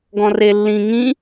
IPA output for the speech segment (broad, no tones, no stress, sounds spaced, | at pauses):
ɡ ɔ̃ r e lː ĩ ŋ ĩ